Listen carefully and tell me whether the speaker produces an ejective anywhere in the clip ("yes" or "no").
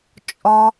yes